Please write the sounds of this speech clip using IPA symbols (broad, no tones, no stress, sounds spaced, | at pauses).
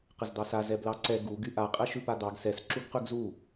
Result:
q ə z d̪ ɑ s a z ɛ b l ɑ ǀ ɛ ɡ u ɡ y ʔ a qʼ ɛ ʃ ʉ p a d̪ ɑ ɡ s ɛ s ǁ u ɡ q ʉ ɡ z u